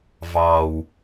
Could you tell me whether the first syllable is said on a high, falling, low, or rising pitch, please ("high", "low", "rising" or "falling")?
low